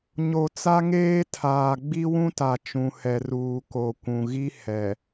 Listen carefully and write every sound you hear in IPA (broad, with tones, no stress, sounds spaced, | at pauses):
ɲ o˨ t͡s a˦ ŋ eː˦ tʰ aː˨ ɡ͡b i˦ w ũ˦ t a˨ t͡ʃ ũ˨ h ɛ˨ r uː˨ k o˨ kʷ ũ˨ ɣ i˦ h ɛ˨